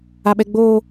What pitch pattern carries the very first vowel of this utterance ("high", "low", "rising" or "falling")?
high